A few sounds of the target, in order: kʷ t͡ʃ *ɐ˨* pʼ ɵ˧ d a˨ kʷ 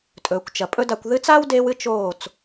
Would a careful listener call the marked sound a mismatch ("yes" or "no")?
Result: no